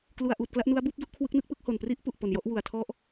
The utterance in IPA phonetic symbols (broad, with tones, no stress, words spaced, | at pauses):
klu˧a̯ʔuː˨˩t̚kla˥˩ʔ nu˦˥a̯ buː˥˩p̚du˦˥ʔ kʰwɯ˦˥k̚nɯ˥˩k̚pɯ˥˩k̚ ho˨˩npri˥˩ʔ pu˨˩ʔpo˨˩njɔ˥˩ʔ wu˨˩a̯ tʰɔ˦˥ʔ